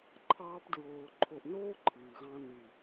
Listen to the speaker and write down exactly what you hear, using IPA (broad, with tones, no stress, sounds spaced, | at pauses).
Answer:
ǃʰ ɑː˧ p d ɹ oː˨ ǃʰ o˨ ʔ n oː˦ ǃʰ ɨː˨ ɣ ɑ̃˦ n ɨ˨